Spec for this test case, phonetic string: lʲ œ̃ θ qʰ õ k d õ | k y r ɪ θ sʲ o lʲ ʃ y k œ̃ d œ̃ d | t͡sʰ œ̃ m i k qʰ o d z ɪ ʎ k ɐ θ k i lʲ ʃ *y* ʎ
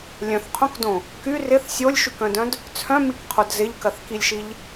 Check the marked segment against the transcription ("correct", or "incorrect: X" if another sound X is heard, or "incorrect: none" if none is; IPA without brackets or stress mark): incorrect: i